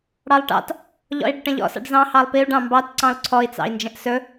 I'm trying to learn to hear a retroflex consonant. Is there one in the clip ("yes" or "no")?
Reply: yes